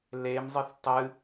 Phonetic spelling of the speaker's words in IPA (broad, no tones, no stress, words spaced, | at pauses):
lemzˤɨθ tˤɨ